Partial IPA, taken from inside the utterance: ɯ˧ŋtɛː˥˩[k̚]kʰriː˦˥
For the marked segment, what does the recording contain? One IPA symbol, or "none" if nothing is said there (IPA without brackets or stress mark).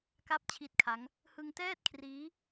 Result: t̚